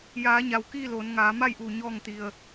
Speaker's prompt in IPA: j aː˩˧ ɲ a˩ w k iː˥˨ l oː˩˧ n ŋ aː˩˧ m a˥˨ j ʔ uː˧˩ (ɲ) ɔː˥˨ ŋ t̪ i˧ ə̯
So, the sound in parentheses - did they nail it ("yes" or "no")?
yes